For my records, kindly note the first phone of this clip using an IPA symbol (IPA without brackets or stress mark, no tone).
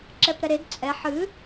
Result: ǁ